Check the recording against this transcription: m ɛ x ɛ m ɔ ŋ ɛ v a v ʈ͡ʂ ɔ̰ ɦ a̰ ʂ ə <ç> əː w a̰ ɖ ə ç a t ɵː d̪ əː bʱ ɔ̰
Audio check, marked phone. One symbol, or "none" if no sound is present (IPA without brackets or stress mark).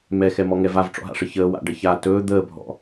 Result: ç